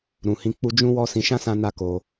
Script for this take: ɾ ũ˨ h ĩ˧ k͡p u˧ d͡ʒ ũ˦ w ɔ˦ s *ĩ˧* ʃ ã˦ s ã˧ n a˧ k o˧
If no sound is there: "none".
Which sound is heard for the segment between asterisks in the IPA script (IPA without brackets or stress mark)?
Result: ĩ˧